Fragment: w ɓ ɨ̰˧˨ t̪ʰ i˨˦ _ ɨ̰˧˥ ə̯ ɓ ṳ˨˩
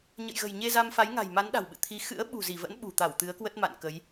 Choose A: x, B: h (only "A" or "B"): A